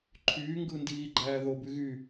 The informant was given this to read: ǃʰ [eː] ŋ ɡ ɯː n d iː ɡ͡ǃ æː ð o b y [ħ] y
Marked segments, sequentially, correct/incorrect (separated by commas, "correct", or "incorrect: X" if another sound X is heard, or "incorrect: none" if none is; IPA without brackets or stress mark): incorrect: yː, incorrect: ɣ